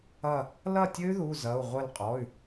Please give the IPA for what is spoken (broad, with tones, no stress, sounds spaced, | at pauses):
ɐ˧˩ | l ɐ˥˩ tʲ ɘ˦˥ y̯ ð u˩˧˩ z ɐ˩˧˩ u̯ ʁʷ ɘ˧˩ l qʼ ɔ˩˧˩ y̯